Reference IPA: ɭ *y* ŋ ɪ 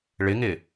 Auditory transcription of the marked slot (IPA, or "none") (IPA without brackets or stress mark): ɪ